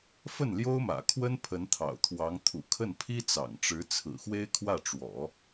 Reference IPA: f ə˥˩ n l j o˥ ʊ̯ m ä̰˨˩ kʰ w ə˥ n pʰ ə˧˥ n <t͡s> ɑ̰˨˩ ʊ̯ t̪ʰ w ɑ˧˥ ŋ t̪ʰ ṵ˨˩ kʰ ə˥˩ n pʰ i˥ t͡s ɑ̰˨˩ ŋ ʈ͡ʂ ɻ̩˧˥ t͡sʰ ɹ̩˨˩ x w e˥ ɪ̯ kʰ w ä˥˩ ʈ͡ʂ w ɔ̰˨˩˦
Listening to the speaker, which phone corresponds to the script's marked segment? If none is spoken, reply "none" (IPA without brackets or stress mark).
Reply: t̪ʰ